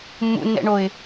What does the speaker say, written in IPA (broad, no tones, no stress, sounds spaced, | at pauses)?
mː ṵ nː ɛ̰ ɳ o ɪ̯